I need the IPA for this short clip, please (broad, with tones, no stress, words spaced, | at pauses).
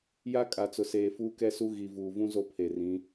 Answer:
ja˦kʼa˨t͡sʊ˨seː˨ fuː˦kɛ˦su˦ ɣi˨vuː˨vũ˦ zo˦pʰe˨rĩ˨˦